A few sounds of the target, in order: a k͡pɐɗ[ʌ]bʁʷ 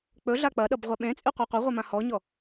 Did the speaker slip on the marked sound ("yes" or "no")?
no